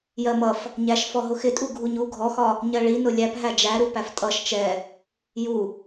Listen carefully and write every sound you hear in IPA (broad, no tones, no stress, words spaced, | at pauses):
jɜmʌf | ɲæʃ fɔɦʊxɪtʼu ɡʱuɲu ɡʱɔxɒ | ɲɜɭinʊ lʲæp ɦæd͡ʒæɾu pæftʼʌʃ t͡ʃɛ | ju